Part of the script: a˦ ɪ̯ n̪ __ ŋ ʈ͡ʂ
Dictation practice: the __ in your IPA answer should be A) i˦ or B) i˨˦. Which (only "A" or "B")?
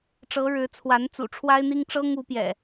A